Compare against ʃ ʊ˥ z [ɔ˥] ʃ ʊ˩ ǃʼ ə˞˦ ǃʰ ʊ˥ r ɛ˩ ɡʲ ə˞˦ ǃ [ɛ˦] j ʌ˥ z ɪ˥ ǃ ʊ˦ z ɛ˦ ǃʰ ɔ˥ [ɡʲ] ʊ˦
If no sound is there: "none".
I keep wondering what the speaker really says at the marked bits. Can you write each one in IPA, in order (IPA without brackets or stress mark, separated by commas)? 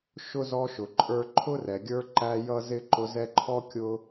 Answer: ɔ˦, æ˦, kʲ